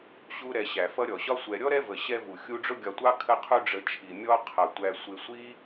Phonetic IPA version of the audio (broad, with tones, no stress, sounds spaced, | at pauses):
ɕ u˦ ɾ ɛ˨ ɕ æ˩ f ʌ˦ ɾʲ ɔ˩ ɕ ɒ˥ sʷ ɛ˨ ɾʲ ɔ˥ ɾ ɛ˦ v ə˩ ɕ ɛ˦ v u˩ xʲ u˦ ɖ͡ʐ ʊ˥ ɡʲ ɒ˨ tʷ ɑ˦ kʰ ə˦ qʰ u˦ ɖ͡ʐ ə˨ t͡ʃʰ i˩ mʲ ɔ˦ qʰ ʌ˩ tʷ æ˨ sʷ ɪ˨ sʷ i˦